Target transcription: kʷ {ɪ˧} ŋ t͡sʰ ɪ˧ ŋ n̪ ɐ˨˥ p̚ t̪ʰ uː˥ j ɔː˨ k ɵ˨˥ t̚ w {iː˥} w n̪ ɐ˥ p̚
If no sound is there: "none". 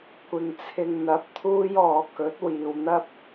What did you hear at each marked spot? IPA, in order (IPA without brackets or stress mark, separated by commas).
ɪ˨, iː˨